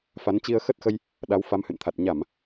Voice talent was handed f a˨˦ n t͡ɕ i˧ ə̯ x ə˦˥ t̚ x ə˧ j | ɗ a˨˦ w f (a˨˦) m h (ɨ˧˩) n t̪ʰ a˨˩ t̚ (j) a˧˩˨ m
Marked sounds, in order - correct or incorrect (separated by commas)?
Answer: correct, incorrect, incorrect